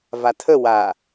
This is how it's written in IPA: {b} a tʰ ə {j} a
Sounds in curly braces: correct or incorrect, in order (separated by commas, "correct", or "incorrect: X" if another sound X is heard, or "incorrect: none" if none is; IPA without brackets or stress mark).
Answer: incorrect: v, incorrect: w